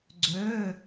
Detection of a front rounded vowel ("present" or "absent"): present